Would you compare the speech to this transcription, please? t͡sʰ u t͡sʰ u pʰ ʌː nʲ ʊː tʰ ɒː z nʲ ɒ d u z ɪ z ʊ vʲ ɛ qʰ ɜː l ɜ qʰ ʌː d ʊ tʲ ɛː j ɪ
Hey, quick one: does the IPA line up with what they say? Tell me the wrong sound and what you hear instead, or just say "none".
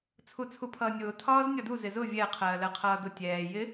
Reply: none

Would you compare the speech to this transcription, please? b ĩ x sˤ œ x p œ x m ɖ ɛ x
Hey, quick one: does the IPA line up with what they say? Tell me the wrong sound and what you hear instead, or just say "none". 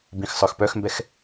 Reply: ɖ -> b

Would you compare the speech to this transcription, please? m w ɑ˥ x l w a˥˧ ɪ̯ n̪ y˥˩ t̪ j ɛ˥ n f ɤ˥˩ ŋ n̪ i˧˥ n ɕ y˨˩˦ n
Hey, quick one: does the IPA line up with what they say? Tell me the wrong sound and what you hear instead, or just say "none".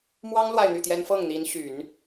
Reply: x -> ŋ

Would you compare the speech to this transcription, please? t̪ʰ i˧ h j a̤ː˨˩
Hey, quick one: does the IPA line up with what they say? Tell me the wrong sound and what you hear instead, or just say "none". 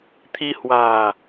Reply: j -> w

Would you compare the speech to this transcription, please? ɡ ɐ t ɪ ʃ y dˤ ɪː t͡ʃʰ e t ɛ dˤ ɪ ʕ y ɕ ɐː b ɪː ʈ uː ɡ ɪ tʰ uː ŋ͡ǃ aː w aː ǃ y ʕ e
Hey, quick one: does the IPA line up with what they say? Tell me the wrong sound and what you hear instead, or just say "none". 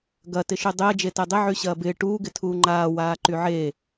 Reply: t͡ʃʰ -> d͡ʒ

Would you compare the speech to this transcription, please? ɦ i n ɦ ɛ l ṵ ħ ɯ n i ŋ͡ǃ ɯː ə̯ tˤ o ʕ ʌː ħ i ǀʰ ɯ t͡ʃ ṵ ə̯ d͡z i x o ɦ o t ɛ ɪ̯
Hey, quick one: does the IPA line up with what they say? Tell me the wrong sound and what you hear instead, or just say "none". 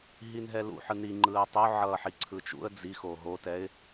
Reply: none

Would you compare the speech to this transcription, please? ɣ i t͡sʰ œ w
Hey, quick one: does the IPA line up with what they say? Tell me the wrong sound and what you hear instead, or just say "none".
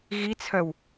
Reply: none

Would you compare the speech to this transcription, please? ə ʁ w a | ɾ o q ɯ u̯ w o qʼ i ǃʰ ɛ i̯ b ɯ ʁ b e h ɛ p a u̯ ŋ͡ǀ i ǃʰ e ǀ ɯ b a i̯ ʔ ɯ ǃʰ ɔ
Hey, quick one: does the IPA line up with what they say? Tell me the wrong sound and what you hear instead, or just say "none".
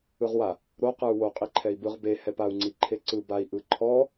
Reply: ə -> ɯ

